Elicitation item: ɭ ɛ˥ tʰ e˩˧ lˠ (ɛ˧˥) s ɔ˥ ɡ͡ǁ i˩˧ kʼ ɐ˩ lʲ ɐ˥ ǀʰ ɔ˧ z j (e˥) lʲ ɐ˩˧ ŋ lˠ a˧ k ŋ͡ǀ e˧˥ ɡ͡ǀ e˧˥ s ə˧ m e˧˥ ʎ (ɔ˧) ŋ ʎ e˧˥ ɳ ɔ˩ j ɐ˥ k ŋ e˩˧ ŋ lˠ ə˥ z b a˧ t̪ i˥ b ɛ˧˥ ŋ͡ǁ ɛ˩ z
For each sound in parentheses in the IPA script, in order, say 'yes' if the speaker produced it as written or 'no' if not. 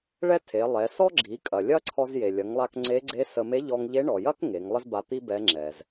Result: no, no, yes

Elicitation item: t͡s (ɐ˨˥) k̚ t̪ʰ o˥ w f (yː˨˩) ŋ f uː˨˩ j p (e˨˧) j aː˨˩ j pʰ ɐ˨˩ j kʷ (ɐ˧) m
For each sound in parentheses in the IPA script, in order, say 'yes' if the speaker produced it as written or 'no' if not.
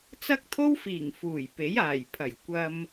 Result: no, no, no, yes

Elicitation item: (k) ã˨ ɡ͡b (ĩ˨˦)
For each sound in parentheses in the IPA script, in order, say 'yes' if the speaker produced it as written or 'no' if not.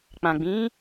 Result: no, yes

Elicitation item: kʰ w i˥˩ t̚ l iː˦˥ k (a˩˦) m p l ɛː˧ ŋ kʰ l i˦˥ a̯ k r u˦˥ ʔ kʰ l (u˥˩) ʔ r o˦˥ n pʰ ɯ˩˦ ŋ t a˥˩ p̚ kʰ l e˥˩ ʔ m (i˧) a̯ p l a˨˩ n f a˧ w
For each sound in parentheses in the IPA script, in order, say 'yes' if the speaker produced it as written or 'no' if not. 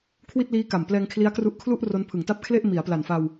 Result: no, yes, no

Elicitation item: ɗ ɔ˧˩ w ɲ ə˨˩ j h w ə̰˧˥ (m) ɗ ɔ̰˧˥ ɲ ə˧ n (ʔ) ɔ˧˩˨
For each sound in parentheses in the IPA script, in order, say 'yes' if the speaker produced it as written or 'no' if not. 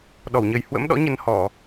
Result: yes, no

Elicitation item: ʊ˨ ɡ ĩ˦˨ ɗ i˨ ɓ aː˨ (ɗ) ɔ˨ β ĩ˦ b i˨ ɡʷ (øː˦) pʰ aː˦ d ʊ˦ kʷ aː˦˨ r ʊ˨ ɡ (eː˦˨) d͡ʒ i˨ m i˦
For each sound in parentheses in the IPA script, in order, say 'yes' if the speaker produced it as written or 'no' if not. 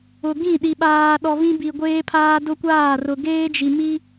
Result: yes, no, no

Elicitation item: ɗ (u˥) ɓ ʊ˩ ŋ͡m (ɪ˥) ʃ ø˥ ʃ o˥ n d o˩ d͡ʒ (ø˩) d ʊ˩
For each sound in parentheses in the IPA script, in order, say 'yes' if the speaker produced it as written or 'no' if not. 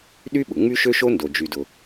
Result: no, no, no

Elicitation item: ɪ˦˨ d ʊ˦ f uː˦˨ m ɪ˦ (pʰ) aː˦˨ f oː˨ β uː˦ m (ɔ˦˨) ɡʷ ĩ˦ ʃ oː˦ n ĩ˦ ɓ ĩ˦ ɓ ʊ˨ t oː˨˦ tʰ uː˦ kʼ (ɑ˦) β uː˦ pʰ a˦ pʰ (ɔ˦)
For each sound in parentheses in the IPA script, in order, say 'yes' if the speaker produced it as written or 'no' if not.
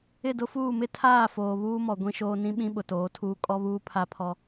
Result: no, no, no, yes

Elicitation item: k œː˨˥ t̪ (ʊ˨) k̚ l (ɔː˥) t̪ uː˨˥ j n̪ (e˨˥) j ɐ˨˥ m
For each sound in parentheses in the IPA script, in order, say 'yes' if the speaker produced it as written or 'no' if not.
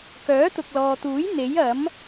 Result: yes, no, yes

